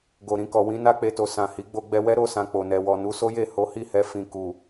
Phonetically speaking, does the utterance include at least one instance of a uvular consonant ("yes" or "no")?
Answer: no